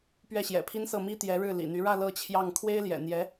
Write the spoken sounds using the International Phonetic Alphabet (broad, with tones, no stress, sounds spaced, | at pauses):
p ɥ ɛ˥˩ ɕ j ɛ̰˨˩ pʰ i˥ n s ɤ˥˩ m i˥ t̪ j ɛ˧˥ ɻ ɻ̩˥˩ l ḭ˨˩ n̪ y˧˥ ɻ ä˥˧ l ɤ˥˧ t͡ɕʰ j ɑ˥˩ ŋ kʰ w e˥ ɪ̯ l j ɛ̰˨˩ n̪ j ɛ˧˥